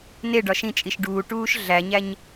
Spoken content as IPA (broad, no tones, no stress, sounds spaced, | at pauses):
n e ɖ ɒ ʃ ĩ t͡ʃʼ i ʃ ɖ uː ʈ uː ʃ ɮ æ ɲ æ ɲ